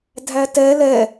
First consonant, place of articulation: alveolar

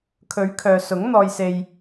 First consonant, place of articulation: velar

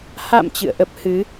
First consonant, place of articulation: glottal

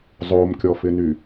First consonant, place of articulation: alveolar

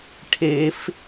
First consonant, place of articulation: retroflex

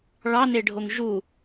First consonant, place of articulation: retroflex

